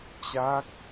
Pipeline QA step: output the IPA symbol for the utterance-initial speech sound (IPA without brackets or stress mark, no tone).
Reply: t͡ɕ